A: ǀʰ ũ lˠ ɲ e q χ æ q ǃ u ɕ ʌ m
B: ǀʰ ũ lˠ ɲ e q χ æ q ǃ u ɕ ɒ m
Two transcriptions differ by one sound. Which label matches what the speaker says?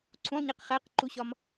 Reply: B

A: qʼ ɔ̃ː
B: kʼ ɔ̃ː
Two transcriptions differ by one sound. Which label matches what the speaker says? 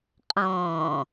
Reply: A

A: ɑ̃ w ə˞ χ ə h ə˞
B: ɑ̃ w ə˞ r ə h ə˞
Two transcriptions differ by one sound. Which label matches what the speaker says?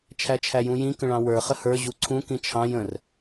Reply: A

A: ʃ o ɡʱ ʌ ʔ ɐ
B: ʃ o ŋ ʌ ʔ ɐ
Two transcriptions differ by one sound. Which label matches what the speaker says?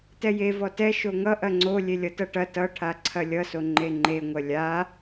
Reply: B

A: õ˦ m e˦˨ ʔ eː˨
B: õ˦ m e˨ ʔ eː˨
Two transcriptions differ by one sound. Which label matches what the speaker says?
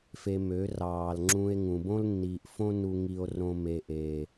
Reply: B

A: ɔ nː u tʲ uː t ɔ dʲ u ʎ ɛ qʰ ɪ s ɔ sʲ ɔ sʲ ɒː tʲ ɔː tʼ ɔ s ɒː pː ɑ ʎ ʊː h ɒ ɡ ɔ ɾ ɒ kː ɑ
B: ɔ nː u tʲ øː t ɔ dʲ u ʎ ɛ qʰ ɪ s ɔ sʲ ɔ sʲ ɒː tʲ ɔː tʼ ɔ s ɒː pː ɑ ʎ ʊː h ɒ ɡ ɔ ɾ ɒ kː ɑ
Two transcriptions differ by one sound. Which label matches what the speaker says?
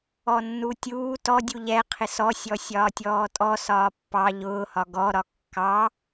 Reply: A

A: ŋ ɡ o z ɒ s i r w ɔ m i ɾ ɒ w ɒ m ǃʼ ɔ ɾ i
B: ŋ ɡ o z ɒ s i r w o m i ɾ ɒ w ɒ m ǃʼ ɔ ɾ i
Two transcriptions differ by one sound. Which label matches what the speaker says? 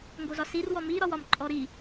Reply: A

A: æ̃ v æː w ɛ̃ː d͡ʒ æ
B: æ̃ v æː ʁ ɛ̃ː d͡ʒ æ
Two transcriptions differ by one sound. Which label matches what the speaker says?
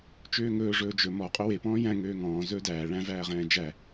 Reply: B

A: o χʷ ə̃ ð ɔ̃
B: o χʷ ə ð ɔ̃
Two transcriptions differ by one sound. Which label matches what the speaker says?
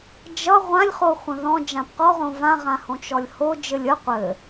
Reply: A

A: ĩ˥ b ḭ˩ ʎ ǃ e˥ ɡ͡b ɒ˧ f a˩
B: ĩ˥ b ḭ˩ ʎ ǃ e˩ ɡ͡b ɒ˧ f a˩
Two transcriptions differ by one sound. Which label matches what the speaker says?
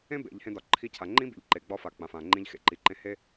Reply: B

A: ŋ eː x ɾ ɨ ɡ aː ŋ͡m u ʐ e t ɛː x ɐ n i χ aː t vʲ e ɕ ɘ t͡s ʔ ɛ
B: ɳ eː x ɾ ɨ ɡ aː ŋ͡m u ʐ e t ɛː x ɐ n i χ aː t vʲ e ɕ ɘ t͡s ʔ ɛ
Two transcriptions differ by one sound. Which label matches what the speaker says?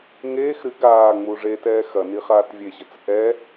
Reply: A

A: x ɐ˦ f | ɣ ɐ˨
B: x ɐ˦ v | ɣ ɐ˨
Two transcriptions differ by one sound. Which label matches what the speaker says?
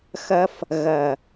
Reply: A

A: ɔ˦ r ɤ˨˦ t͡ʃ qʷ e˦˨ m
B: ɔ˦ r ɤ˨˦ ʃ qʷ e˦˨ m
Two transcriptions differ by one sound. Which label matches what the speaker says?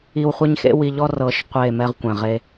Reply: B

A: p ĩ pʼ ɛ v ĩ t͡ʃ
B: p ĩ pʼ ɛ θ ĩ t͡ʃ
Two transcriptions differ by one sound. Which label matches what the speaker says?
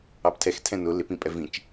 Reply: A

